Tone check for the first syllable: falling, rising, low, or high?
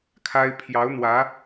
high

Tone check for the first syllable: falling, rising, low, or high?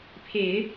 low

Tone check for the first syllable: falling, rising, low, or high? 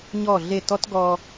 falling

